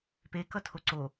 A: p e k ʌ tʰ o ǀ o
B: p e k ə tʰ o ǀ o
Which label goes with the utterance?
A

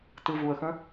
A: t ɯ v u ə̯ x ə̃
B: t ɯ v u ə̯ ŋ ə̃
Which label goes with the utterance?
A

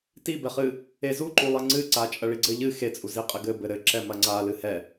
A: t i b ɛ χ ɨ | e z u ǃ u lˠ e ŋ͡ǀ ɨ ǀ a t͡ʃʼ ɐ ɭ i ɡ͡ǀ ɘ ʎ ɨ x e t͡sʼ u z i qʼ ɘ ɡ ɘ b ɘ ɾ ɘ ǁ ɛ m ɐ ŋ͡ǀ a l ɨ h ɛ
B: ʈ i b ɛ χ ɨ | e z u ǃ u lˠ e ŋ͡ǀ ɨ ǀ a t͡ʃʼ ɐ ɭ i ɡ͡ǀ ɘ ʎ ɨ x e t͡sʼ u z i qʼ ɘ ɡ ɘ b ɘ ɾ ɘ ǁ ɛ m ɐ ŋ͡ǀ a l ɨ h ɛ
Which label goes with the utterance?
A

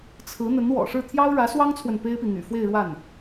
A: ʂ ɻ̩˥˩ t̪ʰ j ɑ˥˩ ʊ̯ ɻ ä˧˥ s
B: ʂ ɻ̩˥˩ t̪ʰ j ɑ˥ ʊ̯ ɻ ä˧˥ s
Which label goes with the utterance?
B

